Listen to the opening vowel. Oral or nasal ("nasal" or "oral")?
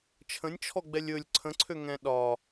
nasal